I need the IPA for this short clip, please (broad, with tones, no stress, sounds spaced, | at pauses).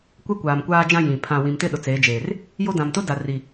kʷ ɛ˦ kʷ aː˨ m kʷ aː˦ d͡ʒ ã˦ j ĩ˨ pʰ ã˨ w ĩ˨ m t ɪ˦ ɗ ʊ˨ t͡s eː˨˦ d͡ʒ eː˨ r | j o˦ d ã˨ m t ʊ˦ d a˨ r i˨